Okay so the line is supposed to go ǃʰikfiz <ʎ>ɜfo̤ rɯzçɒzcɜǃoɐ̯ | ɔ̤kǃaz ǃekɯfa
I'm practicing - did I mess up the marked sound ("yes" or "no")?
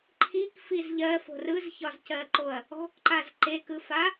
no